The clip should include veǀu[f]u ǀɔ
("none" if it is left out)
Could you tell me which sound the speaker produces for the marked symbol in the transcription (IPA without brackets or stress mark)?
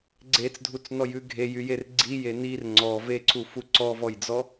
f